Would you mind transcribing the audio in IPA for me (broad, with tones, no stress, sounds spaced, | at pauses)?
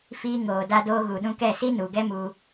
f iː˧ ŋ oː˨ d a˧ d oː˧ ɣ u˨ ɗ ũ˧ k ɛ˦˨ s i˦ n u˨ ɡ ɛ˦ m u˧